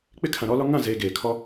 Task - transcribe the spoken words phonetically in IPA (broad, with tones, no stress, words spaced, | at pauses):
k͡pɪ˦kʰã˨ɾɔ˦lɔ˦ ŋã˦˨zeː˨ ɡeː˨kʰɔ˦